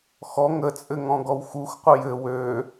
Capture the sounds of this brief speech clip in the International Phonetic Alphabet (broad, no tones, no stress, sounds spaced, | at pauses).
x ɔ ŋ ə t͡sʼ ɘ ŋ ɔ̃ ɡ ɔ w x u x qʷ ə j ɘ w ø